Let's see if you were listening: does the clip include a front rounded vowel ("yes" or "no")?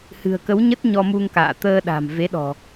no